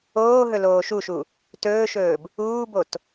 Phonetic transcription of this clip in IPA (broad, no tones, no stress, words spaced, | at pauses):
oːɦɵ loːʃuʃu | tɵːʃɵːb | uːbot